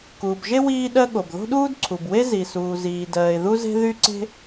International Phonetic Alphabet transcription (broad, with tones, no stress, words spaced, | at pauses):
kuː˩bʒe˥ wiː˥ɗɜ˥ɠo˩b ðo̤˥ɗuː˥dǀʰu˩bwe˥ zi˩suː˩ ziː˩dɜː˩ɪ̯ðu˥ze̤˥ ðy˥ǀe̤˥